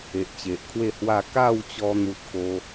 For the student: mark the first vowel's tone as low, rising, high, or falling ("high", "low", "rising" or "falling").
low